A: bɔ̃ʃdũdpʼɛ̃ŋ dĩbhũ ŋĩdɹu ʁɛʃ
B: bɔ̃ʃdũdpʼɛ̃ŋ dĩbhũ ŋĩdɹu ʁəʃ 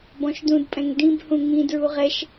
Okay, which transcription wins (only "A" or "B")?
A